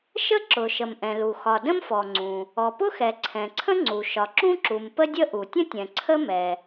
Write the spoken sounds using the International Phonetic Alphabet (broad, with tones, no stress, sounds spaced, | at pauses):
ʃ ə˥ ǁ ʊ˩ ʃ ə˩ m ʔ ɛ̃˩ l u˩ x ɒ˩ d ə̃˥ m f ɔ˩ ŋ͡ǀ ũ˩ | ɔ˩ p ʊ˥ x ɛ˩ ǀʰ ɛ̃˩ ǀʰ ə̃˥ ŋ͡ǀ u˩ ʃ ɒ˩ ǁ ũ˥ ǁ u˩ m p ə˥ dʲ ə˥ ʔ u˩ tʲ ə̃˥ tʲ ɛ̃˩ ǀʰ ə˥ m ɛ˩